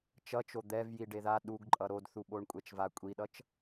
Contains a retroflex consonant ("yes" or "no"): yes